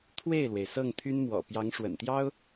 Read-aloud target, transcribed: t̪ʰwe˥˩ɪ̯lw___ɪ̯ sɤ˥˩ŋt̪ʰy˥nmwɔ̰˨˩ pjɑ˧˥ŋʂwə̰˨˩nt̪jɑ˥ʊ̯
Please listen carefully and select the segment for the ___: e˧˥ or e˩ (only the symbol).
e˩